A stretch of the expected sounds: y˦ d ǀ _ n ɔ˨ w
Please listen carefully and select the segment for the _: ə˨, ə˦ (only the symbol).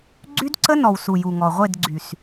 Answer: ə˦